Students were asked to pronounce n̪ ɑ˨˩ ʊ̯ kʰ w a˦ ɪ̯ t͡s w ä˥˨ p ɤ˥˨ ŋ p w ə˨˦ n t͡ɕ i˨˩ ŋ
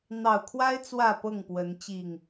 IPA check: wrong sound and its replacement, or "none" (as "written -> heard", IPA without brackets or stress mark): none